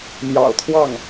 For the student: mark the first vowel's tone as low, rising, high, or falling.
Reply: low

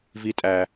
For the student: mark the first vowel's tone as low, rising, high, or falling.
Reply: low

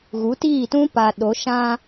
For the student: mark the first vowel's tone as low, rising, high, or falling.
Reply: rising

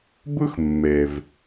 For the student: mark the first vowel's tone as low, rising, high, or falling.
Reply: high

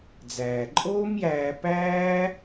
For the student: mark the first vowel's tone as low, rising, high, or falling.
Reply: low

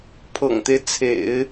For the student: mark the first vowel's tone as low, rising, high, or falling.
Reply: low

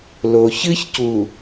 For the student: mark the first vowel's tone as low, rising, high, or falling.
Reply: low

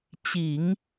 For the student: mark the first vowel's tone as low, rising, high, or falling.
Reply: low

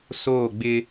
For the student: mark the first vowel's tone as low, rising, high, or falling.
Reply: falling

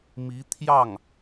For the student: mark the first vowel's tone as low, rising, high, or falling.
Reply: rising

